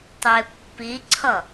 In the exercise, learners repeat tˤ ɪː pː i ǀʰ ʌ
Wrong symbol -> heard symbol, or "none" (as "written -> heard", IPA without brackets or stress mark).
none